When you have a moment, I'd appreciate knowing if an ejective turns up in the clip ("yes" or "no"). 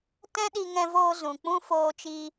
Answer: no